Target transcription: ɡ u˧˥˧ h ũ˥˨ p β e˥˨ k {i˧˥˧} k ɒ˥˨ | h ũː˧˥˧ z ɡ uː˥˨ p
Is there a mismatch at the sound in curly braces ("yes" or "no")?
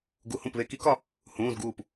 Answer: yes